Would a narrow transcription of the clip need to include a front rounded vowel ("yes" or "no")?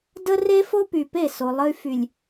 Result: yes